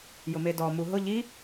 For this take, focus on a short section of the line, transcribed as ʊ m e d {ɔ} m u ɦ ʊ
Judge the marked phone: correct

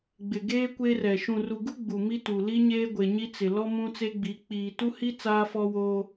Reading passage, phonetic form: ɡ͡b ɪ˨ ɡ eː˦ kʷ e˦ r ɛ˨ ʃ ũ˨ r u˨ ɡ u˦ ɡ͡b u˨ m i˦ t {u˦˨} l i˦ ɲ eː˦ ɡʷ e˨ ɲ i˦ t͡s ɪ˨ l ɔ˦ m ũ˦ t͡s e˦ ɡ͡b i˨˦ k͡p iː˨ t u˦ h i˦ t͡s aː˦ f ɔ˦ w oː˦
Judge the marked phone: incorrect: u˨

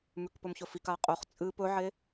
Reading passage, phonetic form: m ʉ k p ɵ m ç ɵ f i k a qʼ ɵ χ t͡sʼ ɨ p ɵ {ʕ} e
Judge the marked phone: correct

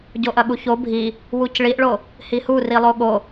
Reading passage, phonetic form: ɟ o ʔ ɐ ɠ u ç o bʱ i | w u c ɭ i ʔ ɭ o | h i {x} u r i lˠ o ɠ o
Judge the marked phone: incorrect: h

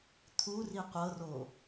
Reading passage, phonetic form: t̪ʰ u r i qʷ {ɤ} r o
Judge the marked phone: correct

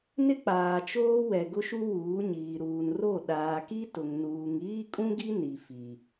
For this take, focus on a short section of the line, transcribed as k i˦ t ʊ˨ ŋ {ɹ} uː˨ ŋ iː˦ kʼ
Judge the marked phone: incorrect: n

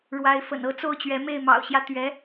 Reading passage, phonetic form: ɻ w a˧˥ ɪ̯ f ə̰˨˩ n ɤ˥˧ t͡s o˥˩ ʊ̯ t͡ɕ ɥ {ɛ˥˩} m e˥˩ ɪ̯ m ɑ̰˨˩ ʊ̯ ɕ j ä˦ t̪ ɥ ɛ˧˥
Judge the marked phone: incorrect: ɛ˧˥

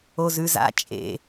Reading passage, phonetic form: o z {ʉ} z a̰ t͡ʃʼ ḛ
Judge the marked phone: correct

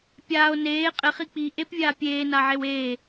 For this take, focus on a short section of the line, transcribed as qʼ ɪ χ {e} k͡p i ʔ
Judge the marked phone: incorrect: i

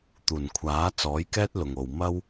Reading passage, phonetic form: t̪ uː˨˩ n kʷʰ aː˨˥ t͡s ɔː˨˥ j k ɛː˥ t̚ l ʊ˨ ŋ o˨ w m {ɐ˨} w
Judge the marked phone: incorrect: ɐ˥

